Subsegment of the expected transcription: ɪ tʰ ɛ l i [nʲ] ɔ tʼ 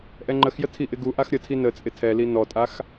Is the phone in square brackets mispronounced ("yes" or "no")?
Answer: yes